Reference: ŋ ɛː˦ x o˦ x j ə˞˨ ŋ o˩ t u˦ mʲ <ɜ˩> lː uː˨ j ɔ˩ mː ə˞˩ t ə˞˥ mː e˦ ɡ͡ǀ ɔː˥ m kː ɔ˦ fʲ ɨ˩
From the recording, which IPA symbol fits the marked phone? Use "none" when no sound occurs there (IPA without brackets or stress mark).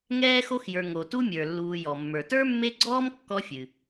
ə˞˩